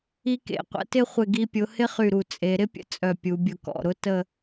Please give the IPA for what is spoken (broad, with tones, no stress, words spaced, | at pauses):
i˧kḛ˩˧qʷə̰˩˧tɪ˥˧ χʷɪ˧˩ɡi˧pʲʊ˩˧ hɪ˥χy˧˩ɾu˧˩ t͡sʼe˩˧ ɾɪ˥pʲə̰˧ t͡sʼœ˧˩pʲu˩˧bʲʊ˧˩ kɔ̰˧˩ɾʊ˥ tə˥˧